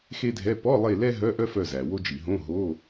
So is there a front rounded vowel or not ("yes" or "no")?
yes